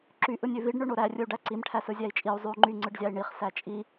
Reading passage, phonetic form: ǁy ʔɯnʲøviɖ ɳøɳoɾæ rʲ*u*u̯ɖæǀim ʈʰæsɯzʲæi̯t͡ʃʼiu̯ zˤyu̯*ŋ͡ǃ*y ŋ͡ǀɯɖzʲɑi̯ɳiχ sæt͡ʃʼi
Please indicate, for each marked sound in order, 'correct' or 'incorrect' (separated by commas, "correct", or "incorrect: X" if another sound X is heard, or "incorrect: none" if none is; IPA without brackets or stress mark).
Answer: incorrect: ɯ, correct